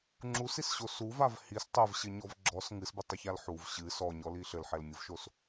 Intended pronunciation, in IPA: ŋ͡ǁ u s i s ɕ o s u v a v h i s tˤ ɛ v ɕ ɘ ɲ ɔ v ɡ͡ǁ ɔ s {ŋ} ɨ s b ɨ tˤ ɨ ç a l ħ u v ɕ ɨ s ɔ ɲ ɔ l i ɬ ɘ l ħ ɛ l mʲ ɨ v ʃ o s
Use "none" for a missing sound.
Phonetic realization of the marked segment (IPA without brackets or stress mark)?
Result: ŋ